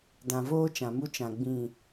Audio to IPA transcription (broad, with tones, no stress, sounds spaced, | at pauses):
d ã˨ v oː˦ t͡ʃ ã˨ m u˦ t͡ʃ ã˨ ɡ͡b ĩ˦˨